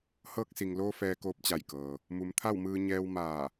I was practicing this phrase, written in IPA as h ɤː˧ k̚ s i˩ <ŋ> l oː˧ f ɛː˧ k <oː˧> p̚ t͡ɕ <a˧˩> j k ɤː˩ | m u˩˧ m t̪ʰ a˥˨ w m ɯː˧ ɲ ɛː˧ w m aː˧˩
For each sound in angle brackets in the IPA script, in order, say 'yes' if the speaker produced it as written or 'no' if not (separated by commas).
yes, yes, yes